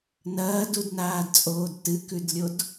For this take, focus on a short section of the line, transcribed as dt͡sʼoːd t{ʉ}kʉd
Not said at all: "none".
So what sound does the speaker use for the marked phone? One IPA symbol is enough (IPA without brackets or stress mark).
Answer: ɨ